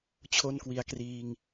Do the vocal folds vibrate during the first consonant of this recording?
no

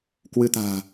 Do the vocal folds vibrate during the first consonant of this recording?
no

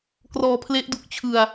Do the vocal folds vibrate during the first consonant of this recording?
no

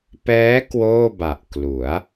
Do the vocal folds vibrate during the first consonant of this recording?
no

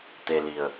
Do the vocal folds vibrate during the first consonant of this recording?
no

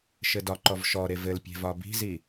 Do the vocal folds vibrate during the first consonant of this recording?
no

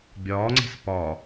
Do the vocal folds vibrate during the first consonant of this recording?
yes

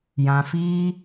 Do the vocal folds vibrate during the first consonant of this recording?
yes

